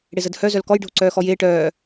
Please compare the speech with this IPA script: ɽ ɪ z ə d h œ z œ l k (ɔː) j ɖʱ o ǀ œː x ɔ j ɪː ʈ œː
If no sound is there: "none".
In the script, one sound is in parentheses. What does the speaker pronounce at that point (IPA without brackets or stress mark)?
ɔ